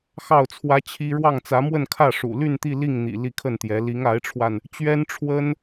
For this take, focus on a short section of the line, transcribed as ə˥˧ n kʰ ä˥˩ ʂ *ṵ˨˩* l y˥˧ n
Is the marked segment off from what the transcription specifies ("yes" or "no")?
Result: no